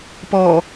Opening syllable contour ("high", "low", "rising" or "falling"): low